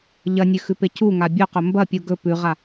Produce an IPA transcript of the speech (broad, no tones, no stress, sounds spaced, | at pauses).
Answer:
ʎ ɐ nʲ ʉ x ʉ p e c u ŋ a bʲ o q ɵ m b ɐ pʲ u ɡ ɵ p ʉ ʁ a